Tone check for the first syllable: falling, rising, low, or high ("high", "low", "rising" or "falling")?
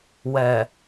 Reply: low